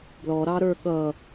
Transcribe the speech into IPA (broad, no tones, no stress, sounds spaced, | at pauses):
b l ɔ ɾ ɑ ɾ ə˞ ɠ ʌ